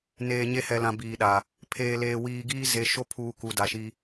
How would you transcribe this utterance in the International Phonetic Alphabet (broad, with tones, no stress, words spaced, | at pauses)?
neː˨ ɲe˦hɛ˨lã˨ biː˨ɗa˨ | pʰeː˨leː˨wiː˨ɡiː˦ ze˨˦ʃo˦ pʰuː˨ ku˨da˨ʃi˦